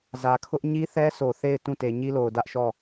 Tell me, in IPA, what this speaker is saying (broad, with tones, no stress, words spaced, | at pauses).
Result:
zä˨kʰʊ˦ʔ ɲi˦θɛ˦so˨ θe˦˨ɪ̯ tũ˦˨te˨ɲi˦lo˨ʊ̯ dä˦ʔʃɔ˦˨